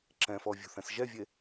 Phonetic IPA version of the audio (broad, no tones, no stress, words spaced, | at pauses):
ǁɛ̃fɔ vʲṳθɛ̃sʒɛvʲe